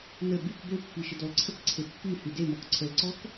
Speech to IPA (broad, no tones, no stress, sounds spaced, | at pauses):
n ə b y k b ø pː i ʃ ə d ɔ l ǀʰ ə k ǀʰ e pː y h y d e m ɔ k ǀʰ ə l ǀ ɔ k